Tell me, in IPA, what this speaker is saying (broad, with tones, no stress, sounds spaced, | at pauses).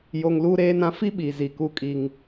j o˨ ŋ l uː˦ ɾ eː˦ n ã˦ f i˦ ɓ i˨ z i˨ k u˦ kʼ i˦ ŋ